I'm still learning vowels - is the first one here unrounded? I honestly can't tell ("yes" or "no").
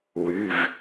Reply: no